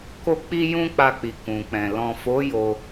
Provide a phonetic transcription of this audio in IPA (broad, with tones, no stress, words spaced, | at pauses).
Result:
ko˧k͡pi˧ jũ˦k͡pa˧k͡pi˨ kũ˨k͡pɛ̃˨ lɔ̃˨fo˨˦ jo˧